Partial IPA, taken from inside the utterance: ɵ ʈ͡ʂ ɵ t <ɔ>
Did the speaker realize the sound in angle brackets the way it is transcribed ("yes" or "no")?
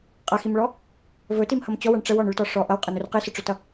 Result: no